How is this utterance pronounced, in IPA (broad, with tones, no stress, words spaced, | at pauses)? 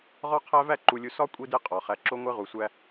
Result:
ʁɒ˦qʰæ˦væ˦ ǃu˨lʲu˨sɒ˦ kʷʼi˦de˦qʼɒ˨χæ˨ ǁo˦ŋʷe˦ʁu˨sʷæ˦